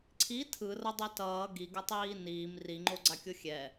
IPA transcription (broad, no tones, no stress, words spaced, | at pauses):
ǀʰi tʰɯrʌdˤe tʌː ɡiɡʌtˤiː niːm riŋ͡ǃoɡ͡ǀakʲo xʲɛ